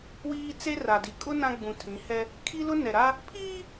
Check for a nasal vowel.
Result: present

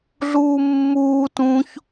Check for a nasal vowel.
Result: present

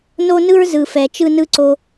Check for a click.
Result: present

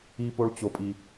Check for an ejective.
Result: present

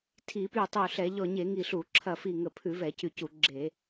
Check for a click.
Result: present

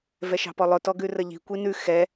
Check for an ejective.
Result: absent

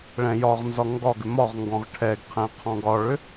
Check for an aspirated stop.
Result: present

